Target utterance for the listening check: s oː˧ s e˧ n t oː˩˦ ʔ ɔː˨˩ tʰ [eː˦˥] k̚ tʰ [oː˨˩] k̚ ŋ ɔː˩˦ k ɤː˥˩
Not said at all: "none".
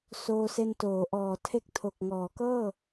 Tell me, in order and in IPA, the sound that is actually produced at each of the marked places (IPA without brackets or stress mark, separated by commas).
e˦˥, o˨˩